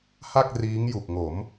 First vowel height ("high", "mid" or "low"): low